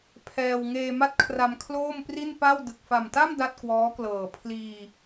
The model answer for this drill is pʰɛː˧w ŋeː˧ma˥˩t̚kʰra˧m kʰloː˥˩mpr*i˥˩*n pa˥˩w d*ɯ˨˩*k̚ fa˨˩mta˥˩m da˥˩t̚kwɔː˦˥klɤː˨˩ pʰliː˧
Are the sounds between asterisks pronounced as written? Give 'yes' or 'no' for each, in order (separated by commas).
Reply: yes, yes